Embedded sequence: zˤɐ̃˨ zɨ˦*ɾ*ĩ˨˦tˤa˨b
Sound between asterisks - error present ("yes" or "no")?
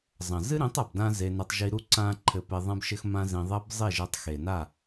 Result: no